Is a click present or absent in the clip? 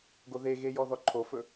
present